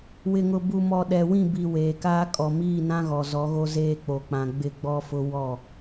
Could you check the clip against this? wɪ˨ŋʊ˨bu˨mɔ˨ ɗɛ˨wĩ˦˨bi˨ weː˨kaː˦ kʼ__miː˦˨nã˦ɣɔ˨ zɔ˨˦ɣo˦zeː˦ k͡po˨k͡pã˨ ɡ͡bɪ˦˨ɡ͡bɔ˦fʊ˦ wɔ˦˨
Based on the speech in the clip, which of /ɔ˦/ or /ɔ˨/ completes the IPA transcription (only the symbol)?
ɔ˨